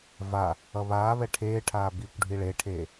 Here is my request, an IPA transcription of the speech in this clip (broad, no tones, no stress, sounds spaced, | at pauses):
v a | ʌ β aː β ɛ ʈʰ eː ʈʰ aː b i kʷ ɖʱ i ɭ e ʈʰ eː